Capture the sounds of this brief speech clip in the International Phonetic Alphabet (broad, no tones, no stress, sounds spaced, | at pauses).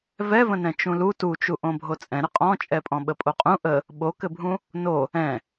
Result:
v ɛ v ə̃ n ɛ̃ t͡ʃ ũ l u t u t͡ʃ u ʔ õ bʱ o t͡sʼ ɛ̃ ɾ ə qʼ ɔ̃ t͡ʃʼ ɛ pʼ ɔ̃ ɓ ə pʼ o qʼ ũ ʔ ə | ɓ o k ɘ bʱ ũ | n o | ɛ̃